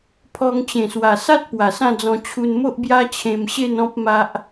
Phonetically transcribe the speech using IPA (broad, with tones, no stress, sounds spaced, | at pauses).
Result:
pʰ ɔ˧ ŋ t͡ɕ ẽ˨˩ s w a˨˩ s a˦ t̚ p w a˨˩ s ã˥˧ d͡z ɔ̃˧ t͡ɕʰ u˧ n m o˦ ʔ b j a˦ t͡ɕʰ ẽ˧ m ɕ e˥˧ n ɔ̃˦ p̚ m a˦ ʔ